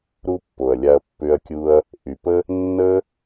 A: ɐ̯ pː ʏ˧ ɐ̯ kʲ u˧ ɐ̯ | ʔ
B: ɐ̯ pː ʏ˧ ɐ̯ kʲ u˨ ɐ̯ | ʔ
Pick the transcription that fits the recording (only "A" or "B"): A